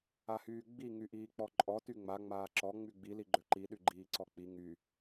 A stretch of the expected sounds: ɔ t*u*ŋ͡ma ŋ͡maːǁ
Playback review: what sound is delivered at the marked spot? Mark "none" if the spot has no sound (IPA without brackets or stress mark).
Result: y